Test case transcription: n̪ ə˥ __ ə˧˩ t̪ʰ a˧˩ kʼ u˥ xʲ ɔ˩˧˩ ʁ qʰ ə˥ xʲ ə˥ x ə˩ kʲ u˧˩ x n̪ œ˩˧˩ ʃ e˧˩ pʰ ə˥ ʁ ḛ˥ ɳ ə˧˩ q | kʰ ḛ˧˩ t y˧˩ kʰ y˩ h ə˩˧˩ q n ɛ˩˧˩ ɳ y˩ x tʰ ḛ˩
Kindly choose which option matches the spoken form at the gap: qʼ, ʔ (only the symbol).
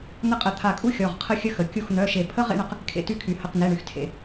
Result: qʼ